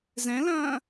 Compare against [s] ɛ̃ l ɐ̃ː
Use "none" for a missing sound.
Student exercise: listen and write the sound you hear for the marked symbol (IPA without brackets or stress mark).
z